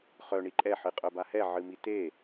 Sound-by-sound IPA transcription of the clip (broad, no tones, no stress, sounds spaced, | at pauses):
χ œ ɳ i ǃʼ ɛ ħ ɨ qʼ œ b a h ɛ ʕ ɨ m i t e